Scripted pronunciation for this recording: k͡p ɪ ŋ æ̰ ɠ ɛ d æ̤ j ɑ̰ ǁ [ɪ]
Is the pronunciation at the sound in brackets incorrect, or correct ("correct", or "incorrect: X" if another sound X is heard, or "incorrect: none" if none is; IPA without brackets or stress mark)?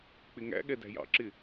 correct